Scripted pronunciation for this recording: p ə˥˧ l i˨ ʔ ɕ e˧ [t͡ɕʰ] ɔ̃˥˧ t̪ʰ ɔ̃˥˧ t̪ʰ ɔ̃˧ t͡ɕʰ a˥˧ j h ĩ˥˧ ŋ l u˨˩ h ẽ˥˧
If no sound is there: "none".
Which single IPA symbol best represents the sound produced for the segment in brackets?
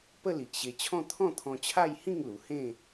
t͡ɕʰ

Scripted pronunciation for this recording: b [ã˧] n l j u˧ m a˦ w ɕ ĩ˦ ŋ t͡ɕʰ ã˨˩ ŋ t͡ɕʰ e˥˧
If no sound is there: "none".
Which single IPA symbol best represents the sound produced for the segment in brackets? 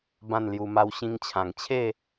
ã˥˧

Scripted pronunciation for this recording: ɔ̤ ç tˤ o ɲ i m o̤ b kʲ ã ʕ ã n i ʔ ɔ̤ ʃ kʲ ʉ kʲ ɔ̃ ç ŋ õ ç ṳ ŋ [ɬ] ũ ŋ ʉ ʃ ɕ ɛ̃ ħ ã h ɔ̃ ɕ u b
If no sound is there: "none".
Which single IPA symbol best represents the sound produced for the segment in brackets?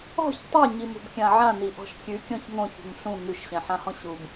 ɬ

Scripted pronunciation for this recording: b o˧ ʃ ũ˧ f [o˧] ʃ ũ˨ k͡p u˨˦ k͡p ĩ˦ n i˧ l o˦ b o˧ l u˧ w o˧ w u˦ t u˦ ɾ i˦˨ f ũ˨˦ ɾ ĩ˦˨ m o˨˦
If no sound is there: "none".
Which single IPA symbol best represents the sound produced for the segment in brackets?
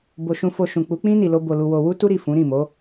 o˧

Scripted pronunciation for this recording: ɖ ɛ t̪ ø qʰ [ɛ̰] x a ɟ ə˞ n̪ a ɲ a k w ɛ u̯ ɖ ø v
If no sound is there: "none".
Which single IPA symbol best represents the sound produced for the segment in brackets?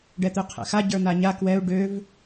ɛ̰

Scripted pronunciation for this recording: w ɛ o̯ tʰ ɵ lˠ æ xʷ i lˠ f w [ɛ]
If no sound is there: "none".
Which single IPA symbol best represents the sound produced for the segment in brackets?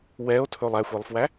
æ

